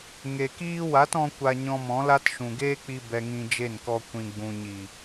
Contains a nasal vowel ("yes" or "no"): yes